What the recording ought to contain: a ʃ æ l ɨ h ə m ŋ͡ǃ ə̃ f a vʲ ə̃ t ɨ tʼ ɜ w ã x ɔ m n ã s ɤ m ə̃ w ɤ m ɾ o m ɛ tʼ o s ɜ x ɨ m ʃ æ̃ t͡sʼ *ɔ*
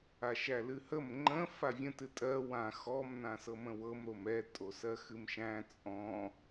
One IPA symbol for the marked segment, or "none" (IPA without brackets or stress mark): ɔ̃